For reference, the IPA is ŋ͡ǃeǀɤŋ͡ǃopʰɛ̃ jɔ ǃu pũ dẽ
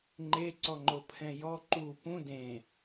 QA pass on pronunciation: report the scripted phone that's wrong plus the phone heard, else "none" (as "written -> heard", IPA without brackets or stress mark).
ɤ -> ɔ